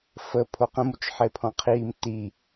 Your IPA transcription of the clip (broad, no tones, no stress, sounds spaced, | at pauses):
f ə pʰ o q ə̃ m u t͡ʃ ħ e pʰ ɔ̃ qʰ iː m t i